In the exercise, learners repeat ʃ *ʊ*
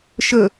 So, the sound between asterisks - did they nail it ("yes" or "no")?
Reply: no